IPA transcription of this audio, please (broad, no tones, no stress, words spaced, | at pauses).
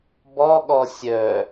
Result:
bɔɠɔ sʲœ